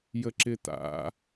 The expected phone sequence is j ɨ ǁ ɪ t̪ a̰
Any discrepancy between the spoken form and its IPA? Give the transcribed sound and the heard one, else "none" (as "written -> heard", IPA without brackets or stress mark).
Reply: ɨ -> ə